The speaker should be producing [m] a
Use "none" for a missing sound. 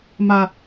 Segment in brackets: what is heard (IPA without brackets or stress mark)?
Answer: m